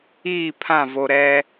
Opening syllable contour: falling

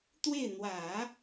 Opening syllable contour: falling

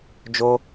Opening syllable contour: high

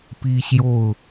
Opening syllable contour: high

